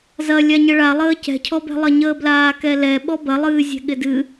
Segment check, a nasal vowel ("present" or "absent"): absent